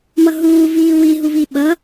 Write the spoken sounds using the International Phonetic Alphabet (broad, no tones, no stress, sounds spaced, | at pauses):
m ʌ ɦ uː v iː w i ɦ u v i ɓ ʌ